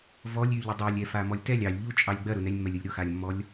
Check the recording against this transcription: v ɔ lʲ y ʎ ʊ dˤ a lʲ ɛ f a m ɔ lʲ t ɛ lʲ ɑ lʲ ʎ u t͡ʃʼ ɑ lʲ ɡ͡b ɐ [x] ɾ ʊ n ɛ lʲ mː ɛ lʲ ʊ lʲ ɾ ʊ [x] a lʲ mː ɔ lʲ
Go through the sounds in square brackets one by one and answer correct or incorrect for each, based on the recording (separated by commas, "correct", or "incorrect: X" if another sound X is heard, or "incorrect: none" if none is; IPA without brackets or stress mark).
incorrect: none, correct